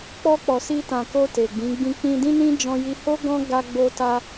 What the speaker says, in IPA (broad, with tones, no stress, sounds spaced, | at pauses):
k͡p ɔ˧ k͡p ɔ˨ s i˧ t ã˨ k o˧ t e˨ ɡ͡b ĩ˨˦ ɡ͡b ĩ˦ k͡p ĩ˧ d ĩ˦ n ĩ˦ d͡ʒ ɔ̃˦ j i˦ h o˦ ɡ ɔ̃˦ ɡ a˦ ɡ͡b o˦ t a˦